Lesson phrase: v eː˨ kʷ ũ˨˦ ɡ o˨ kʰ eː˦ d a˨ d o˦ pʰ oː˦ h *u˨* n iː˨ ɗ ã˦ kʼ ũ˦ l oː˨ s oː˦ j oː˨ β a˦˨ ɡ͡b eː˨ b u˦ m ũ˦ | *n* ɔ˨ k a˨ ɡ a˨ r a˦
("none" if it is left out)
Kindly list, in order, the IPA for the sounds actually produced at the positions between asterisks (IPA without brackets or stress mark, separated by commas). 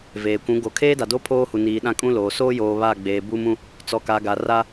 u˨, t͡s